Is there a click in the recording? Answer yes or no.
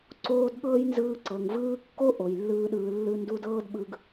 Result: yes